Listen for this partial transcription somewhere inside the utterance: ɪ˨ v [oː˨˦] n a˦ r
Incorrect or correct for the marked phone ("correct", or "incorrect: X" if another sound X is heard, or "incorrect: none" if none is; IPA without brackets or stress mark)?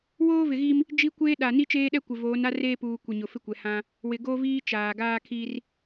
correct